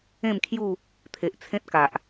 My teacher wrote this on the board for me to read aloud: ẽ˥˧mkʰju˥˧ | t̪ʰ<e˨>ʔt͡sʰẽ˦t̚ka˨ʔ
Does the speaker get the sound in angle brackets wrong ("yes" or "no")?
no